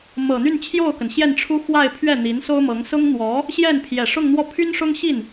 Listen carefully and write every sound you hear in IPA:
mɤ˨˩n̪y˥˧nt͡ɕʰjo˥˩ʊ̯kə˩n ɕjɛ˥˩nʈ͡ʂʰu˥ xwa˥˧ɪ̯pʰɥɛ˥˩ n̪i˧˥nso˥ʊ̯mɤ˧˥ŋ sʊ˥ŋn̪wɔ˧˥ | ɕjɛ˥˩n pʰjɛ˨˩ʂʊ˥˧ŋn̪wɔ˥˩ pʰy˥nʂʊ˥ŋɕi˥˩n

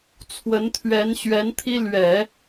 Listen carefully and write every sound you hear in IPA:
t͡sʰwə˧˥nt̪ʰɥɛ˧˥nɕɥɛ˧˥nt̪ʰi˥ lɥɛ˨˩˦

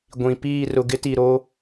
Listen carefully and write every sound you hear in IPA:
ɡʷĩ˨piː˦˨ rʊ˨ɡɪ˦ti˨ɾoː˦

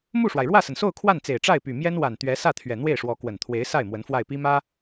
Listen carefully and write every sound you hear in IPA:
mu˥˩ʂwa˩ɪ̯ɻwä˥˩sə˩n so˥˧ʊ̯kʰwa˥˩nt͡se˨˩ɪ̯ ʈ͡ʂa˥˩ɪ̯py˨˩mjɛ˥n wa˨˩n t̪ɥɛ˧˥ sä˥˩t̪ʰɥɛ˨˩ n̪we˥˩ɪ̯ʂwɔ˧˥kwə˨˩n t̪ʰwe˧˥ɪ̯sa˥˩ɪ̯ mwə˧˥nfwa˥˩ɪ̯pi˥mä˥

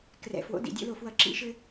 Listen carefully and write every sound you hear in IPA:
krɛ̰˨˥fwo̰˨˥ dḭ˥˨dʲo̰˥lo˥˨fwʌ˥˨ ǁḭ˥ʃɘ˥

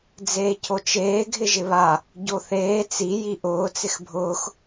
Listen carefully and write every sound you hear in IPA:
d͡zeːcʰot͡ʃeː ɡʱɪʒɪβa | ɟoθeː t͡si jiʔʊː t͡sɪxbʱʊːx

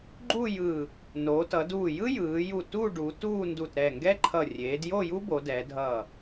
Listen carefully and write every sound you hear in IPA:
ɡ͡ǃu˥˧jɯ˧˩ | noː˩˧tʌ˩˧duː˧˩ jɯ˥jɯː˩˧ju˧˩ tu˥˧ ɖu˩˧tuː˥˧ndu˧˩t ɾɛ˧˩ŋɡɛ˥ǃʰʌ˧˩ rʲeː˩˧djo˥˧ju˥ bo˩˧dɛ˩˧dʱʌ˧˩

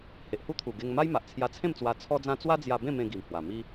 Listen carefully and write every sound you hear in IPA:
he˨ʔhu˦t̪ʰu˨˩ ɡe˧ŋma˦jma˨ʔ t͡sʰja˧t͡sʰẽ˥˧mt͡swa˧ t͡sʰɔ˦d͡zã˦ t͡swa˦d͡zja˧bẽ˥˧ mẽ˧ɡi˨˩mhwa˨˩ mi˦

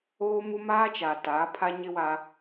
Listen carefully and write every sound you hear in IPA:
oː˦mu˦ maː˦t͡ʃa˨ ta˨˦ pʰa˦ɲɪ˦ wa˦

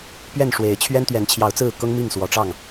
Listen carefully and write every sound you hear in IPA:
pɥɛ˥˨nʂwe˨˦ɪ̯ t͡ɕʰɥɛ˦nt̪ɥɛ˨˦nt͡ɕʰjɑ˨˦ʊ̯t͡sɹ̩˥˨ kʊ˦ŋmi˥˨ŋ swɔ˨˦ʈ͡ʂɑ˥˨ŋ

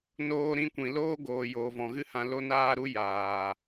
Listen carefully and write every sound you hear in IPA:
noː˧ɾĩ˧kʷĩ˨ loː˦ɡoː˨ joː˨vɔ̃˨ɣɨ˦hã˧ lo˦naː˦ɾu˦ jaː˨

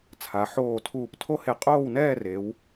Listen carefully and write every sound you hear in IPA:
t͡sʰa˩˧ ħoː˧˩ tʰuː˧˩ptʰo˥he˧˩ qʼoː˥˧wnɛː˥˧re˩˧w

